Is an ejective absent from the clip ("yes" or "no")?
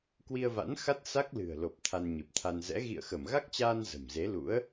yes